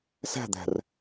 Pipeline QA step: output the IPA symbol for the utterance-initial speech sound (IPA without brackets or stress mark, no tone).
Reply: s